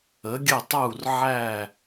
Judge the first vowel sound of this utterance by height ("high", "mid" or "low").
mid